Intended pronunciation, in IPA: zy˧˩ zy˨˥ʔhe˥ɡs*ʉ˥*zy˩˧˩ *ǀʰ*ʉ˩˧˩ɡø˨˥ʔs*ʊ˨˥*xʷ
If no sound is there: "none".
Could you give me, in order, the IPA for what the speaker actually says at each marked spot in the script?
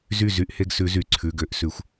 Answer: ʉ˨˥, ǀʰ, ʉ˨˥

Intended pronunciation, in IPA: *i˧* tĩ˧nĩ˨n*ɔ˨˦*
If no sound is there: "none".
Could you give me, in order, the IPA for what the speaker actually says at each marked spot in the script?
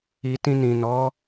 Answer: i˧, ɔ˨˦

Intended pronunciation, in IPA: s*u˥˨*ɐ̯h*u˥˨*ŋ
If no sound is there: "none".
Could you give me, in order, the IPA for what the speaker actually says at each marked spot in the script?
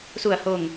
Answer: u˥˨, o˥˨

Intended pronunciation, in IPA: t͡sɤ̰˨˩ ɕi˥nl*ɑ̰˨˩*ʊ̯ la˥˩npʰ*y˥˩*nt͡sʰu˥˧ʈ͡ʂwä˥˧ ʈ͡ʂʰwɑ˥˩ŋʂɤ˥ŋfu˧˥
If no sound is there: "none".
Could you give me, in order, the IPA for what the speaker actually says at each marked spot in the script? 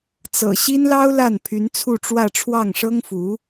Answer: ɑ˥, y˧˥

